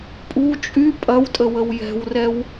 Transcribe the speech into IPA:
pʼ u t͡ʃʼ y pʼ ɐ w tʼ ə w ə w j ɛ̤ w r ɛ w

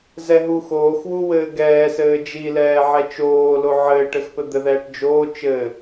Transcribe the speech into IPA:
z ɛ ɦ u x oː x w u w ɘː ɡ ɛː s ɘː d͡ʒ i l ɛː ʕ ɛ t͡ʃ oː l o ʕ ɘː ʈ ɘ x p ɘ d̪ ɘ ð ɛː ʈ d͡ʒ oː t͡ʃ ɘ

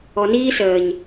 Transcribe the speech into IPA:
ɔ˨ n iː˦ s əː˨ ɲ

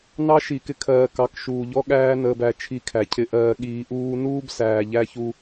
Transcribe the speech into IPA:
n ɑ˦ ʃ i˨ k ɪ˧ kʰ ɜː˨ k ɑ˨˦ k ʃ uː˨ ʎ ɔ˦ ɠ æː˦ n əː˧ b æ˧ t͡ʃʰ i˧ kʰ æ˨ cʰ ɪ˧ ʔ ɜː˧ ɠ iː˧ ʔ uː˦ n uː˦ b s æː˨ ʎ æ˦ ç u˦

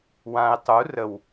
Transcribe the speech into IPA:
w ã e̯ tˤ u r ə w

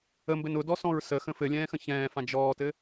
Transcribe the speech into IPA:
ə m b ɘ n ʊ d ɔ s ɔ̃ ɹ s ə x ə̃ f ɘ lʲ ɛ̃ː x ə̃ ç ɛ̃ː f ã d͡ʒ ɔː t ɘ

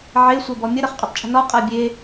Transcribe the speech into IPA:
ʕ e sʷ ɤ b ɔ mʲ ə ɾ ʌ χ qʼ ʊ tˤ t͡ʃʼ ə̤ n ɔ qʼ a bʲ e

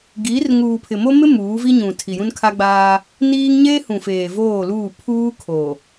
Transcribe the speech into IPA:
ɡ iː˨˦ r ŋ uː˨ pʰ ɪ˨ m o˦ m ɪ˦ m uː˨˦ v i˦ ɲ ũ˨ tʰ i˨ j ũ˦ n kʰ a˦ ɡ͡b aː˦ | n iː˦ ŋ ɲ eː˦ h ũ˨ f eː˨ v oː˦˨ l uː˦˨ pʰ uː˦ kʰ o˨

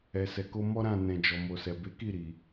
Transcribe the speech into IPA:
ɛ˨ s ɛ˨ k o˧ m ɔ˦ ɾ ã˦˨ n ɛ̃˨ d͡ʒ ɔ˨ m o˨ s ɛ˨ b e˨˦ k i˦˨ ɾ i˨

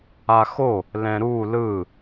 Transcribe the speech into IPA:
a x o | l ɛ̃ ɾ u l ɯ

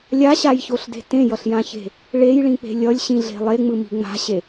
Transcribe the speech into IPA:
lʲ a ɕ a j ç o ɬ d e̤ t ẽ j ʌ ɬ j ã ç e̤ | ɭ e j ɭ ĩ k͡p e̤ lʲ ʌ lʲ ɕ ĩ ɮ e̤ lˠ e ŋ͡m ɯ m i̤ ŋ͡m a̤ ɕ e

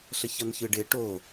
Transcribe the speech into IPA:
ɬ ə ç ʌ n ç ɯ ɖ ɪ ʈ o

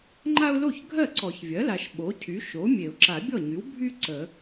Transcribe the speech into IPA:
ŋ͡ǃ a˦ ʊ̯ l o˥˩ ç ɡʱ ɜ˥˩ ǀ ɔ˨˩˦ ç vʲ ɜ˩˥ l a˨ ʃ ɓ o˩˥ cʰ y˩˥ ʃ o˩˥ mʲ e˨˩˦ ʊ̯ ǁ a˨˩˦ bʲ ɔ˥˩ ɲ y˩˥ w bʱ y˦ ǀ ə˨˩˦

